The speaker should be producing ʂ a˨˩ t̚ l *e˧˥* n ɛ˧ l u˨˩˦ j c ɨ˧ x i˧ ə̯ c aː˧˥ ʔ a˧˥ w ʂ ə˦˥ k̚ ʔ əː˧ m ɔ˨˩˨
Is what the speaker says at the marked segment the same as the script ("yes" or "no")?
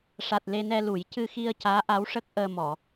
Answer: no